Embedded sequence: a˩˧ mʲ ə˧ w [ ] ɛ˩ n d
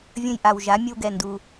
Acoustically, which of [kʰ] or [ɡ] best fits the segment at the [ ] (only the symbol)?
ɡ